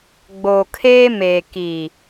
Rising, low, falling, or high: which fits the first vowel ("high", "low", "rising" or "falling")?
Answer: low